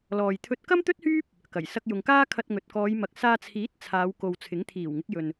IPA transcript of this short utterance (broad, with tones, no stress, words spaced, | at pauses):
lɔː˨jt̪ʰɵ˧t̚ kɐ˥mt̪ɵ˥t̚hyː˥p̚ | kɐ˨˩j sɐ˧k̚jʊ˨ŋkaː˥ kʰɐ˧t̚ŋɵ˨t̚kɔː˨˧j mɐ˨k̚saː˧t͡sʰiː˨˥t̚ t͡sʰaː˨˧wko˨w t͡sʰɪ˨˥ŋ t̪ʰiː˨˩wŋɪ˨˥k̚ jɵ˨n